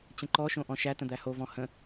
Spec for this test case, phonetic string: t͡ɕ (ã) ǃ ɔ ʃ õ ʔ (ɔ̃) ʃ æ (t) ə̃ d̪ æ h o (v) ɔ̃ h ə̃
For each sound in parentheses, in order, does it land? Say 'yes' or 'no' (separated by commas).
no, yes, yes, yes